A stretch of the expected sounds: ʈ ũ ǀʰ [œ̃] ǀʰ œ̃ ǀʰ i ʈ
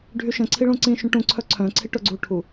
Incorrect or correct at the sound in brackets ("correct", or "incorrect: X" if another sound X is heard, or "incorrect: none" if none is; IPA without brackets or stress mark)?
incorrect: œ